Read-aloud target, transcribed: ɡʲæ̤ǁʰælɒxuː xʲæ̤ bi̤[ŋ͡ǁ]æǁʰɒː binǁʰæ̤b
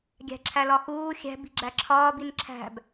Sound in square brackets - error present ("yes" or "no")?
yes